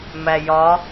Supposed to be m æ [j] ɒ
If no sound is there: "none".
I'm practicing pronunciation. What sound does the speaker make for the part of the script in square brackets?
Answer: j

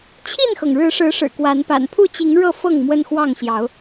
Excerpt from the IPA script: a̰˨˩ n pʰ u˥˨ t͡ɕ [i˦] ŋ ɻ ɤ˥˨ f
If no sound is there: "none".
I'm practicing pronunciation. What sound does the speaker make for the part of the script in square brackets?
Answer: i˨˦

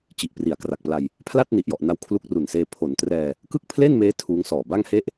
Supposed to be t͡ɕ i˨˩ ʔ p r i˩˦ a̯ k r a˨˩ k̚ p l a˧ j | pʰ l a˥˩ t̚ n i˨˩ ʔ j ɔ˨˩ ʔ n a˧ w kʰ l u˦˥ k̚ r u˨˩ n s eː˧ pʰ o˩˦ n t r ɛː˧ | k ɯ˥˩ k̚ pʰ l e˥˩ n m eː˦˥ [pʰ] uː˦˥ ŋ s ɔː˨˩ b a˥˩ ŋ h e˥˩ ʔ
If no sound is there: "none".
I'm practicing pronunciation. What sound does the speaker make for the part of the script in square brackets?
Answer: tʰ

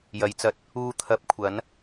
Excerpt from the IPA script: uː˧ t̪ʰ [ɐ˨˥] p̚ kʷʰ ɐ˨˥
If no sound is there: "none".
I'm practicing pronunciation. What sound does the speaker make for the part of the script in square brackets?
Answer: ɐ˨˥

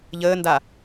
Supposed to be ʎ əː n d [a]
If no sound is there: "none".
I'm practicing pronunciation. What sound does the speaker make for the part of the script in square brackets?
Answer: a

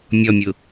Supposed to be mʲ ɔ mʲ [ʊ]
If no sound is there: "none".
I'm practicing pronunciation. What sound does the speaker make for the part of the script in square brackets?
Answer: ʊ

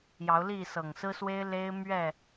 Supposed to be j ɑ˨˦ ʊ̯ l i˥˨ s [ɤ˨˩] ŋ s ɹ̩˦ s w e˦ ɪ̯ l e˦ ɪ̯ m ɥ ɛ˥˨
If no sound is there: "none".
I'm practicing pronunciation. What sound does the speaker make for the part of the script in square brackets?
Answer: ɤ˨˩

